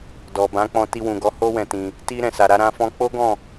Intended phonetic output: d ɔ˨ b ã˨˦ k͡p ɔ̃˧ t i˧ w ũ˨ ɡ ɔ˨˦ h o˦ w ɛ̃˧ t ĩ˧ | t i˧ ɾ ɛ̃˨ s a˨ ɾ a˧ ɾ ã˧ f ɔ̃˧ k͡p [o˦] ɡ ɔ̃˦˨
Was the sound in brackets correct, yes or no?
yes